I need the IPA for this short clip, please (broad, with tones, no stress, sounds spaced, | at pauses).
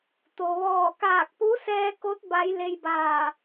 t̪ o˩ ʋ ɔː˧˩ k aː˧˩ k̚ p u˧˥ s ɛː˧ k o˧˥ t̚ b a˧˥ j l e˧ j b aː˧˩